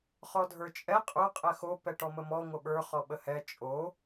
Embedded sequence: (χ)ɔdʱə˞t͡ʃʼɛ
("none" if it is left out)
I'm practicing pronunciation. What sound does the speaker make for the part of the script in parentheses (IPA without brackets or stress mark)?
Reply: χ